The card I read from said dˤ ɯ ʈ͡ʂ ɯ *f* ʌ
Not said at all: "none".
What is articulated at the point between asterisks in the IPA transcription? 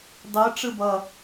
b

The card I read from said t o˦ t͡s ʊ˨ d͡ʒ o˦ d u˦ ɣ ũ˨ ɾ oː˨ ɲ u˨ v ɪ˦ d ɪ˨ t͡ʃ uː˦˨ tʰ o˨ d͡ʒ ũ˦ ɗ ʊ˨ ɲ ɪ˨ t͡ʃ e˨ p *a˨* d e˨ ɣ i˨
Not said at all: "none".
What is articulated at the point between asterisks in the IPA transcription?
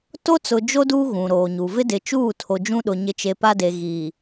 a˦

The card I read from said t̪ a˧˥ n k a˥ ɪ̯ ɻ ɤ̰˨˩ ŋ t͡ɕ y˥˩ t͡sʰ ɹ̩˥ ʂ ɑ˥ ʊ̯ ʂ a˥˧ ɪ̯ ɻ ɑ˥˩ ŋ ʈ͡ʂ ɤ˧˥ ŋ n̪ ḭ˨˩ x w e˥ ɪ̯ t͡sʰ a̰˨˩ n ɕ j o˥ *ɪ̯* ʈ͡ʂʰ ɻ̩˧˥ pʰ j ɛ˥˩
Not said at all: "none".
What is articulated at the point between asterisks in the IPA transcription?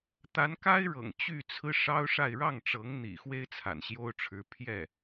ʊ̯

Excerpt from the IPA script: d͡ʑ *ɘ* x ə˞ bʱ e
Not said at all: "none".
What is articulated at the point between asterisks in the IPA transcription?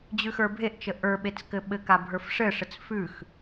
ʉ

